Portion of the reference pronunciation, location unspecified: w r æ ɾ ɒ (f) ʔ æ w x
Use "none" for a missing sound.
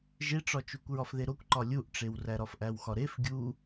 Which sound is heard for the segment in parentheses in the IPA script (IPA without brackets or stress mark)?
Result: f